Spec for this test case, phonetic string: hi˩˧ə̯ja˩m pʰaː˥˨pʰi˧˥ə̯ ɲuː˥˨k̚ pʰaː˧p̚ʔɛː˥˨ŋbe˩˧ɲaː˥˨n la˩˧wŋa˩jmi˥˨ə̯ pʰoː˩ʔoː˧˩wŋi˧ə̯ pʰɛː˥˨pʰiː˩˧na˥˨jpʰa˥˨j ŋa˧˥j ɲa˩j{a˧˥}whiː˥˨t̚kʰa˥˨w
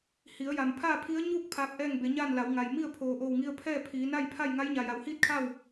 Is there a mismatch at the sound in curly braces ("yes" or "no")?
yes